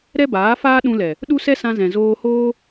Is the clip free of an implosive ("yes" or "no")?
no